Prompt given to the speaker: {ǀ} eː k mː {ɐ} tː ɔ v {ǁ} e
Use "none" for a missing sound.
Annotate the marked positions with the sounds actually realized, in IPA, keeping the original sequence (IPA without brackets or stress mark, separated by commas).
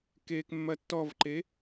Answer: k, ɐ, ǃ